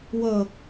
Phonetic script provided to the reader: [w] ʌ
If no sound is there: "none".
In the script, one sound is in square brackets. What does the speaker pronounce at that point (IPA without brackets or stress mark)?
w